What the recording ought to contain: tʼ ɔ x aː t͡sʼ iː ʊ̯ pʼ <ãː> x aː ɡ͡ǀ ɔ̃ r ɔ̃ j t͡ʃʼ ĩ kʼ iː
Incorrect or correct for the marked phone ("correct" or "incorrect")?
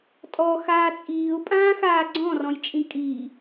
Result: correct